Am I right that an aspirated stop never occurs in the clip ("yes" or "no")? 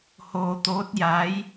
yes